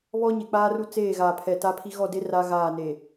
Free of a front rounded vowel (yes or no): yes